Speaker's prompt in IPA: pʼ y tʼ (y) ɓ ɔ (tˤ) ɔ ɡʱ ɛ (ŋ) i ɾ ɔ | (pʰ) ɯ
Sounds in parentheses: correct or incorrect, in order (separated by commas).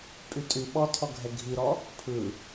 correct, incorrect, incorrect, correct